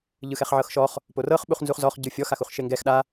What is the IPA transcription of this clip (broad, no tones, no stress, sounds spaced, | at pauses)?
ʎ ɯ x ɛ χ ʕ ɤ x ʃ ɔ χ | p o r ɤ χ ɓ u χ n z u χ z ɔ χ ɟ ɯ fʲ ɔ x a x u χ ʃ e ŋ ɡ ɛ x ɗ a